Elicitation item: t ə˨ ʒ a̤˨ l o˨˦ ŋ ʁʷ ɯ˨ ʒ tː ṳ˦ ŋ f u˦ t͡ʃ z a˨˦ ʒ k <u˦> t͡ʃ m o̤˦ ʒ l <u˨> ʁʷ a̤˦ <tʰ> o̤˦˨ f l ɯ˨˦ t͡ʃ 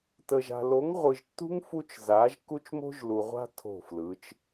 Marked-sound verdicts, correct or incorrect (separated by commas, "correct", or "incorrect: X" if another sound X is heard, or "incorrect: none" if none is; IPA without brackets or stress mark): correct, correct, correct